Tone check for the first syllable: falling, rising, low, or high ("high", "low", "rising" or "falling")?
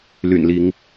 low